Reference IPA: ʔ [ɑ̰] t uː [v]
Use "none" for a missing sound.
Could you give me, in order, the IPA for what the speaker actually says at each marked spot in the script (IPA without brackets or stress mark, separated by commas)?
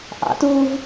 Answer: ɑ̰, v